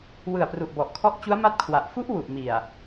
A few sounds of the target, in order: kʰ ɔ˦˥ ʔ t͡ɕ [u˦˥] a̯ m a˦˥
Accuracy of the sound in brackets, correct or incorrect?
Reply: correct